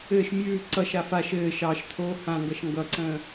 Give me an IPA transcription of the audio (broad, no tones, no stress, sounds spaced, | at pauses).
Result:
ɘː ʃ mʲ ʉː ǀ ʌ ʃ a f a ʃ ɘː ʃ ɑ ʃ t̪ʰ oː h ã ŋ ɡ ʌ ʃ ŋ ɡ ʌ ǀ ə̃ː